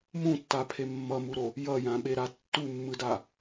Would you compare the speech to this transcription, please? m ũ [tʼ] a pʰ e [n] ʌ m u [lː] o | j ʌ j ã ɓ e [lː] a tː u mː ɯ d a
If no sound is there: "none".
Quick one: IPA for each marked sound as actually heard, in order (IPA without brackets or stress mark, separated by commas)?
tː, mː, ɾ, ɾ